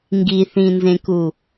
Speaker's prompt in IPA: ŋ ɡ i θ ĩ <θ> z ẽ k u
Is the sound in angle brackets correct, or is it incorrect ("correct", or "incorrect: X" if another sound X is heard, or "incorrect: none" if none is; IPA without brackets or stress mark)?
incorrect: n